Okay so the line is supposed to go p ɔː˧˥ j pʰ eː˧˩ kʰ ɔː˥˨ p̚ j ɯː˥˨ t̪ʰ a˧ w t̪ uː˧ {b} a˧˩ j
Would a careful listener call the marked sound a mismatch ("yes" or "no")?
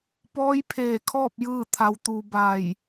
no